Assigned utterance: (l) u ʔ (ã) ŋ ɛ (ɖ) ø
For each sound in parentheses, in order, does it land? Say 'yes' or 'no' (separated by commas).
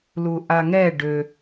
yes, no, yes